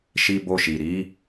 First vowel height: high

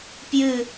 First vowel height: high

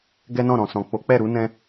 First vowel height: mid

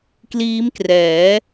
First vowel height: high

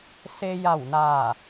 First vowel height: mid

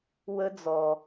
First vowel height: mid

